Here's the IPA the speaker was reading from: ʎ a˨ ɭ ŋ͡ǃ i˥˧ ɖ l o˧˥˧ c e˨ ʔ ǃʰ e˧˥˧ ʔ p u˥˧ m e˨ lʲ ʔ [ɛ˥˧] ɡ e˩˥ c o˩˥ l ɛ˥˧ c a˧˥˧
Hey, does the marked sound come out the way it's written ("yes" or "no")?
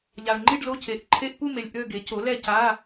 no